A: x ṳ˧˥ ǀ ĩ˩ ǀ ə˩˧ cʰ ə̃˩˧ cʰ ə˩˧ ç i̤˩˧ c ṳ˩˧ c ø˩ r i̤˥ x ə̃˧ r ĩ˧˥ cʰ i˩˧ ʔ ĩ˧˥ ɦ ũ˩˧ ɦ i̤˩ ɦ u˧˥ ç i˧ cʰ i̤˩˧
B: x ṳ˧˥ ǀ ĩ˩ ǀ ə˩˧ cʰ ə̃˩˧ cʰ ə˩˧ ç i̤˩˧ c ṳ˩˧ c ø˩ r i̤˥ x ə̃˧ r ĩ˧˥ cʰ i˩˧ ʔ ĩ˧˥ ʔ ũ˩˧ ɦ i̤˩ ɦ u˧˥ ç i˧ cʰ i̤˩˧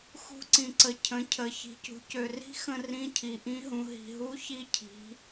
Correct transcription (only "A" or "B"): A